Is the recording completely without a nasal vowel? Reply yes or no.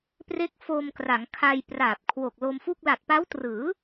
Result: yes